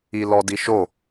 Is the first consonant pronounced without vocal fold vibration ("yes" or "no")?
no